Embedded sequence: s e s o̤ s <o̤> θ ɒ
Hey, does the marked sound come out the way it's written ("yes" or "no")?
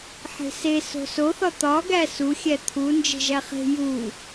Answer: no